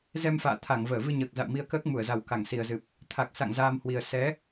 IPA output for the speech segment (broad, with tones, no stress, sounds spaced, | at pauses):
z ɛ˧ m f a̰ː˧˨ t̪ʰ a˧˩ ŋ v əː˧˩ v ɨ˧ ɲ əː˨˩ k̚ z a̰˧˨ w m i˧ ə̯ k əː˦˥ k̚ m u˧˩ ə̯ z a˨˩ w k a˧˩ ŋ s i˨˩ ə̯ z ɨ˨˩ p̚ | t̪ʰ a˨˩ k̚ s a̰˧˨ ŋ z aː˧ m h w i˨˩ ə̯ s ɛ˨˦